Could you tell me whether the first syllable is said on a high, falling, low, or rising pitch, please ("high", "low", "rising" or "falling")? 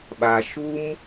low